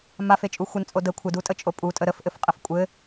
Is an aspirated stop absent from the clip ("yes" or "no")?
no